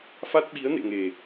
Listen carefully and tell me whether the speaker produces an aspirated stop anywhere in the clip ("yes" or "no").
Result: no